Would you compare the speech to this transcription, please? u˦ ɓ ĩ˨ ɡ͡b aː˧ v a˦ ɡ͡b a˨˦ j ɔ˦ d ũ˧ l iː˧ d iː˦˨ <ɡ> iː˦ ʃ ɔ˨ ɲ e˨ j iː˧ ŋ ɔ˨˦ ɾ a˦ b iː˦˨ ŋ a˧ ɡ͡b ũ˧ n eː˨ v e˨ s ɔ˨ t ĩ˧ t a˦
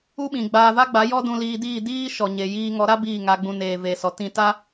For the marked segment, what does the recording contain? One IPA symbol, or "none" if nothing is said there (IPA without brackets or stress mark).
d